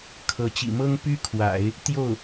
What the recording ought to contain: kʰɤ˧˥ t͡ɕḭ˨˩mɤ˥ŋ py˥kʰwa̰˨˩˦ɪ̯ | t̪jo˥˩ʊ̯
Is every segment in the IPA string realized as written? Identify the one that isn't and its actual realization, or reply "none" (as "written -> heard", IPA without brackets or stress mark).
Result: none